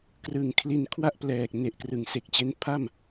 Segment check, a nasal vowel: absent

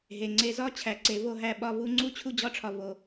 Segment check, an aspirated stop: present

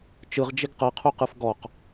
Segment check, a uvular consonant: present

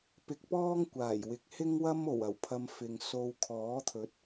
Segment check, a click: absent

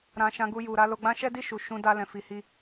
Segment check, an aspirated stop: absent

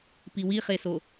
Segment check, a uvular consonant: present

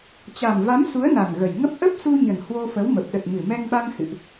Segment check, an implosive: present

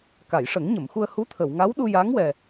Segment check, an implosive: present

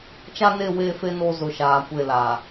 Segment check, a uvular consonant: absent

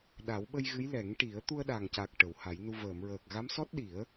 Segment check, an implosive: present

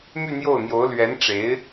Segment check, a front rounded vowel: present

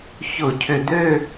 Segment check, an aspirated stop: present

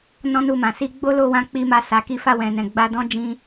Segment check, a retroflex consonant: absent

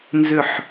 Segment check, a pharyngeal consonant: present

